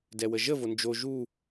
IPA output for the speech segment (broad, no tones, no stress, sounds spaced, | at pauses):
d ɛ w ə ʒ ə v o n d͡ʒ o ʒ u